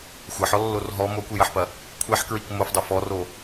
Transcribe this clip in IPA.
xʷ ɐ ħ ɔ lː o r ɦ ɔ m o kʷ i j ɐ ħ p ɐ | kʷʰ ɛ ħ k ɹ i k m o f dˤ e f ɔ r o

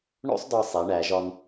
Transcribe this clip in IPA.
ɳ o̰˥ sˤ d ɒ˧ sˤ e˩˧ ɳ æ˩˧ ʒ ɒ˧ n

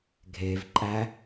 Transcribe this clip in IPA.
ɡʱ e v ǃʼ æ

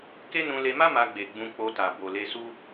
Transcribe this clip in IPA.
k e˦ n ũ˧ l e˧ m a˦ m a˧ ɡ͡b e˨ ɡ͡b ũ˧ k͡p o˧ t a˨ b o˨ l e˧ s u˦

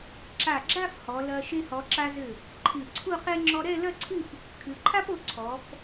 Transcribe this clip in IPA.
ǁ a˧˩ ɡ͡ǁ a˥˧ f h ɔ˩˧ l ɐ˧ ʃ e˧ h ɔ˩˧ ǁ a˧ z ɘ˧˩ | ǃʰ ɨ˧˩ ǀʰ u˥˧ q e˥ ŋ͡ǁ ɔ˧ ɾ ɛ˥˧ l ɐ˥˧ ǀʰ ɨ˥˧ p | kʰ ɨ˩˧ ǃʰ a˥ p o˧ ǀʰ ɔ˩˧ f

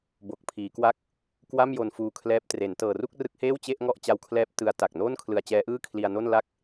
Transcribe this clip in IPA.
b o˨˩ k̚ pʰ iː˩˦ k w a˦˥ k̚ | k w a˥˩ m j o˧ n f uː˧ kʰ l ɛː˦˥ p̚ t r e˩˦ n t ɤː˨˩ r u˥˩ k̚ r ɯ˦˥ k̚ h eː˥˩ w t͡ɕ e˥˩ ʔ ŋ ɔ˥˩ ʔ t͡ɕ a˧ w kʰ l ɛː˦˥ p̚ t ɯ˦˥ a̯ t a˨˩ k̚ n oː˥˩ n kʰ l ɯ˧ a̯ t͡ɕ ɛː˦˥ ʔ ɯː˥˩ kʰ l i˧ a̯ n o˥˩ n l a˥˩ k̚

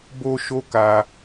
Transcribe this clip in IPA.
b o˦ ʃ o˦ k a˧

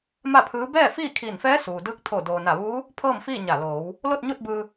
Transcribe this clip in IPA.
m a˥˨ pʰ ɯː˧˥ b ɛː˥˨ f iː˥˨ kʰ iː˧˩ n f ɛː˧˥ s uː˩ d ɯː˧˥ k̚ t̪ʰ o˧˩ d oː˩ n a˧˩ ʋ uː˧˥ | pʰ ɤː˥˨ m f iː˥˨ ɲ a˧˩ l oː˩˧ w | l o˥˨ t̚ ɲ u˥˨ t̚ b ɯː˧

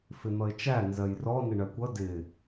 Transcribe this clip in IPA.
f ɪ n̪ ʌ ɪ̯ t͡ʃ æ n z ɜ j r ɔ n ɪ ɳ ɜ kʷ ʌ d ɪ

